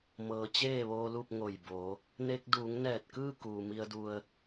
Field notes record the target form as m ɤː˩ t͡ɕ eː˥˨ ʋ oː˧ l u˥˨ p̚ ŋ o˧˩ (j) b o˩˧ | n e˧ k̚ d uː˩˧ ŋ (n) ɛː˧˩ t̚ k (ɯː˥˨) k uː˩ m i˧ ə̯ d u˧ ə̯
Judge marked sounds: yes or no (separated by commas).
yes, yes, yes